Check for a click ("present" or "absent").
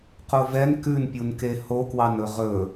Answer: absent